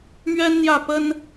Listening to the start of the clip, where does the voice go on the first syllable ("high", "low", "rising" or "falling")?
high